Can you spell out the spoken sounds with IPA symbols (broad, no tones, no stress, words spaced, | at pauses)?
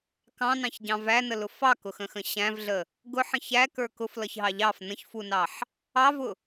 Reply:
kɑ̃nɑ̃çɟɑ̃ vænəlʊ fɑkʊxə̃xə̃ ɕæ̃vɮə | ɡʊħə̃ çækə˞ kʊflʌçɦɑ ʎɑf nə̃çfunɑħ | ɑvʊ